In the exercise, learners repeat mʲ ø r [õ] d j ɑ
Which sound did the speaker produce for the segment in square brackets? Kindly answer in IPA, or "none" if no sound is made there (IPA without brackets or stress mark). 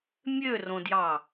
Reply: õ